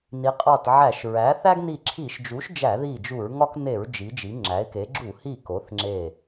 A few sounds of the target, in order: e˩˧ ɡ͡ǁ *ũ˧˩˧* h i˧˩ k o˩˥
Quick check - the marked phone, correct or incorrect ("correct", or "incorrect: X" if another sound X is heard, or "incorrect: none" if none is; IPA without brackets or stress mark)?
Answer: incorrect: u˧˩˧